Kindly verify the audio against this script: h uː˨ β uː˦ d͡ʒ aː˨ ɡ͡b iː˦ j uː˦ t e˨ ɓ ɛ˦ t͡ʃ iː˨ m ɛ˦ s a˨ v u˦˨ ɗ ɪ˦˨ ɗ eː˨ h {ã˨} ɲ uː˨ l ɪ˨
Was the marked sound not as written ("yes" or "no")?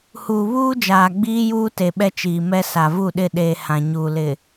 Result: no